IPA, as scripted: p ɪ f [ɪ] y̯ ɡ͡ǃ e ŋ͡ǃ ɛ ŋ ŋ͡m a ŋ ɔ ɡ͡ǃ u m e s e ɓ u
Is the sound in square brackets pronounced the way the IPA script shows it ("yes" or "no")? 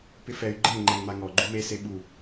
no